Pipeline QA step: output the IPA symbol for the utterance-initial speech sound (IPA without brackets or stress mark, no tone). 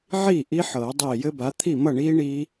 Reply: ʕ